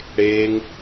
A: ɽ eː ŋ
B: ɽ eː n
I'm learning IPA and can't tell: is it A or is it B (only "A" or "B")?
A